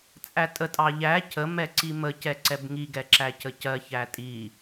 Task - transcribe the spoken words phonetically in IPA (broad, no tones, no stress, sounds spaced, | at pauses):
t͡sʼ æ tʼ ə tʼ ɑ ʎ æ cʰ ə m ɛ ǀ i m ə c ɛ ǀ ɛ b ŋ i ɡ ɛ ǁ æ c ə c ɜ ç æ tʼ i